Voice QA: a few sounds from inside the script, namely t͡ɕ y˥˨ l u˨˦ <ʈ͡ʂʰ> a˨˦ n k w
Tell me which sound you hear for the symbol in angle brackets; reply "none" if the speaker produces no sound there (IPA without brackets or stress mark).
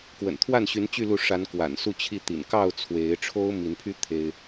ʂ